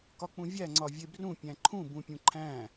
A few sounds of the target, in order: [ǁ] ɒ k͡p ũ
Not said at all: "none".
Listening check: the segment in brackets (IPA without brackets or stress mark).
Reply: k